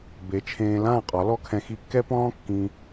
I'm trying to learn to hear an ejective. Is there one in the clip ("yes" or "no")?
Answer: yes